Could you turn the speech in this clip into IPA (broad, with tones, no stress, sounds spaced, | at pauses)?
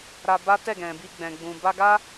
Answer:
ɾ a˧ b a˦ t ɛ˦˨ ɡ ɛ̃˨ b i˧ ɡ͡b ɛ̃˨ ɡ͡b ũ˨ b a˧ ɡ a˦